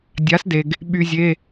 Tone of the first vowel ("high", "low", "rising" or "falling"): rising